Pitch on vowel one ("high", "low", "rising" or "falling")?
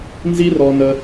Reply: high